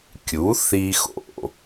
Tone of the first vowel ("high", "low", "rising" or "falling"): rising